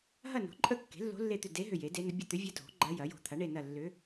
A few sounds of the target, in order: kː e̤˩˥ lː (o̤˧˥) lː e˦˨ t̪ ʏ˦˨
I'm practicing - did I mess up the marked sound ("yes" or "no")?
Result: no